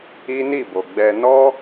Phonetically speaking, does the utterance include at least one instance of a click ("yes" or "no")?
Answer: no